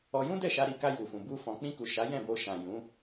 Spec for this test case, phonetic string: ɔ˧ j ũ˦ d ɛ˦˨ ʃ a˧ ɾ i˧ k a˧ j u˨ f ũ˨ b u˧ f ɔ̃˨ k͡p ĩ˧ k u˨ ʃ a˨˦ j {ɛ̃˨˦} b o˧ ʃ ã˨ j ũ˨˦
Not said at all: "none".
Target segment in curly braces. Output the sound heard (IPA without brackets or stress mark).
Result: ɛ̃˦˨